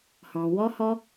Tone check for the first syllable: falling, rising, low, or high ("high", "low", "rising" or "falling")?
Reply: low